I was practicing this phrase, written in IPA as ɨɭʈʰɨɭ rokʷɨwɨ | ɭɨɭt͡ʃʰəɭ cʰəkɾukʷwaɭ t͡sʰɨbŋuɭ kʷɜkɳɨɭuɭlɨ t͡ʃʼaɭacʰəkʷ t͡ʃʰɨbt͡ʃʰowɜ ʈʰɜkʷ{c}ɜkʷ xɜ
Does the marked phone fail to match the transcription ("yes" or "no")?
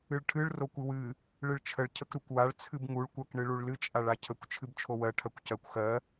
no